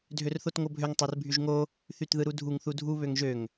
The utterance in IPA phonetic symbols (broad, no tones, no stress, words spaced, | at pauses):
dʱørθotŋobʱøŋ tˤorbʱyʒŋo | θytðɯɾudʱuŋ θudʱu βøŋʒøŋ